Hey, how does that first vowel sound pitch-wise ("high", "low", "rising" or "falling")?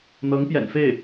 rising